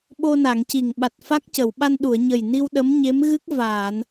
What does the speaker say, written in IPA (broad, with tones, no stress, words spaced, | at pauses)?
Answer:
ɓo˧na˨˩˨ŋci˨˩ŋ ɓa˨˩t̚fa˦˥k̚cə˨˩˨w ɓa˧nɗu˨˩˨ə̯ ɲə˨˩jni˧w ɗə˧˥mɲe˧˥mɣɨ˦˥k̚ vaː˨˩˨n